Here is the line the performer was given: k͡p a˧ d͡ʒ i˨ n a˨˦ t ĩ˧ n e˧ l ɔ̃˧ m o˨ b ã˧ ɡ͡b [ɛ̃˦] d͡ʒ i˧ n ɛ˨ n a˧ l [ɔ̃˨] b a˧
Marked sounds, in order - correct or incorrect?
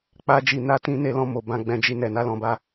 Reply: incorrect: ɛ̃˧, correct

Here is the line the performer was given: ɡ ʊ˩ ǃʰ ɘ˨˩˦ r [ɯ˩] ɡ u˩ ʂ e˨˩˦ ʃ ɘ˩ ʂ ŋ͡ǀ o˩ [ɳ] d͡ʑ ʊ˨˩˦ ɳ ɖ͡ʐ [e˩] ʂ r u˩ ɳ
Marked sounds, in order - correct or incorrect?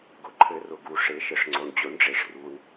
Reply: incorrect: ʊ˩, correct, correct

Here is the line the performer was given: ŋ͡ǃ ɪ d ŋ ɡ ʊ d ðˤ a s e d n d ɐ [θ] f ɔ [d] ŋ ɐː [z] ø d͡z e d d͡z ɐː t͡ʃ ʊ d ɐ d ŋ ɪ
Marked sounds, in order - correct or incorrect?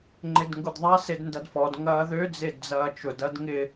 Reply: incorrect: d, correct, incorrect: ð

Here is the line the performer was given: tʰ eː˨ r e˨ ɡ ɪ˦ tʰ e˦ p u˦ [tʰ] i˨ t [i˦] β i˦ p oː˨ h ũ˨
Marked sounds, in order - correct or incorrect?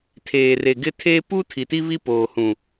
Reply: correct, correct

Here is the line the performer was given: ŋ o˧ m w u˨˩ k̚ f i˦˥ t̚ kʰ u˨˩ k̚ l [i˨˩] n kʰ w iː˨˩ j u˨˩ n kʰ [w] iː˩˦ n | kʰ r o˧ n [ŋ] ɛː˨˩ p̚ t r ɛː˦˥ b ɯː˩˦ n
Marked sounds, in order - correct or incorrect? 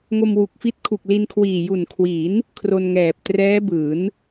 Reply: incorrect: i˧, correct, correct

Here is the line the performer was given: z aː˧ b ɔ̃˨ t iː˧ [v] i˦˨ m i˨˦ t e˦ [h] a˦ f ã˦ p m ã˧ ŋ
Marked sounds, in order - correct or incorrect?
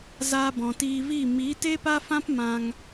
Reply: correct, incorrect: p

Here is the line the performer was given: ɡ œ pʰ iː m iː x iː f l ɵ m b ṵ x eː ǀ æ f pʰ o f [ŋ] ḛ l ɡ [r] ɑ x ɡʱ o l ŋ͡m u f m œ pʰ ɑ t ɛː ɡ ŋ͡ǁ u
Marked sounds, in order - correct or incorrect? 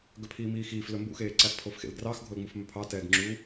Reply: incorrect: x, correct

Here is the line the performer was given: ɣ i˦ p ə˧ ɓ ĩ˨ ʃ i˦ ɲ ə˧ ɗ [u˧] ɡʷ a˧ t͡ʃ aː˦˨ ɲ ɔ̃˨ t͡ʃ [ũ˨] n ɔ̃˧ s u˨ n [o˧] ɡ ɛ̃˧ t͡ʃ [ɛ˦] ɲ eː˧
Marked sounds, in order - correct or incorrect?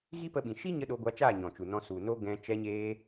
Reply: incorrect: o˧, incorrect: u˨, incorrect: o˦, incorrect: ɛ˧

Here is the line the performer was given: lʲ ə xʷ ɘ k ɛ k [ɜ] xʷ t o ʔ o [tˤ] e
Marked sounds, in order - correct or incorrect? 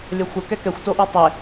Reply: incorrect: ɛ, correct

